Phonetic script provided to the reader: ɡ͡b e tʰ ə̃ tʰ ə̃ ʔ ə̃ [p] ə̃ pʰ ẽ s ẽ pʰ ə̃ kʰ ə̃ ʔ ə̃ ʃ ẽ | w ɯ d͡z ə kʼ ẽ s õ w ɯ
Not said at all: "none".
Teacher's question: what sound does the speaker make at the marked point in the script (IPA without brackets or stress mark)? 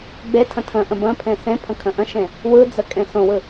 b